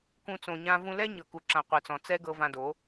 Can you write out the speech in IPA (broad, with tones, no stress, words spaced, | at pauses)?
kũ˧ t͡sõ˧ɲã˦ vũ˧lɛ˦ ɲɤ˨ku˨ǁã˨ qʷɯ˨t͡sɔ̃˨ t͡sɛ˦ɡɤ˧ vã˧do˨˦